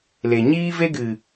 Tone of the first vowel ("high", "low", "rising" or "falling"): low